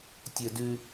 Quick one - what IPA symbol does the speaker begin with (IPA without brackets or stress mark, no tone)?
tʲ